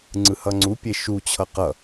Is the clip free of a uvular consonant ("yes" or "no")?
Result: no